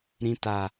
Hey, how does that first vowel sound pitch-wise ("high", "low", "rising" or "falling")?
low